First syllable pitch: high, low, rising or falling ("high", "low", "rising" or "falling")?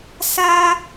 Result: high